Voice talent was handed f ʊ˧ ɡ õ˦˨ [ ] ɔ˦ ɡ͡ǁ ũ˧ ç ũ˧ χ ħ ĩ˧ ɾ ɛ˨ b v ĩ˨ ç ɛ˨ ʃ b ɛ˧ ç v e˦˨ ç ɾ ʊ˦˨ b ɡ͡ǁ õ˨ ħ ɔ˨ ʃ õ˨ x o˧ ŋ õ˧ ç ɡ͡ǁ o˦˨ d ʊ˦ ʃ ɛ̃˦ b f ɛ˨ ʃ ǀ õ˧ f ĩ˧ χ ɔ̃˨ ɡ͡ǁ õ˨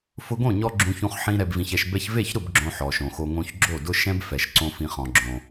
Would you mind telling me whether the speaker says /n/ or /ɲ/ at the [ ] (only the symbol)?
ɲ